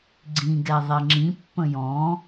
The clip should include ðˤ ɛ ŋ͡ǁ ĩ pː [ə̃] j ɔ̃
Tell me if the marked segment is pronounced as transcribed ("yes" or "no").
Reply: yes